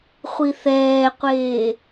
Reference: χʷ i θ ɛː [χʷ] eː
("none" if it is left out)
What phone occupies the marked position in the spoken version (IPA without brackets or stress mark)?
qʷ